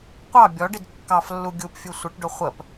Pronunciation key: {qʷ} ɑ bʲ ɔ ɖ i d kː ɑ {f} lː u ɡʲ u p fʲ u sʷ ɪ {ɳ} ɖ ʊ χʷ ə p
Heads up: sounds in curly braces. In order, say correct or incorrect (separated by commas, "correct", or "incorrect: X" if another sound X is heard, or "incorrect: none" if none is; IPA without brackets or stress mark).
correct, correct, incorrect: ʈ